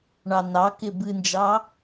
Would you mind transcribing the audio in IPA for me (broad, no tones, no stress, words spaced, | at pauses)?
ɳɑnɑkɪ bɨnd͡ʒɑ